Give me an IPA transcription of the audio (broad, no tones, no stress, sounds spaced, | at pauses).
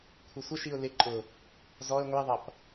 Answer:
kʷʰ ʌ sʷ ə ʃ i ʊ̯ l ɪ ǃʼ ʊ | z ɔ ə̯ ŋʷ i ðˤ ʌ p